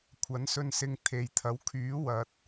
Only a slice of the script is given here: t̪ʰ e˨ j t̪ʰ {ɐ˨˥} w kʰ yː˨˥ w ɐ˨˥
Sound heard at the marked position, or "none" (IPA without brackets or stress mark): ɐ˨˥